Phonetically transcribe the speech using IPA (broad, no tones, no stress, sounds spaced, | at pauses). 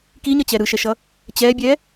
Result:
k i ɲ ʌ t͡ɕ ɛ ɾ ɯ ʃ ɛ ʃ ʌ | t͡ɕ ɛ bʲ ɛ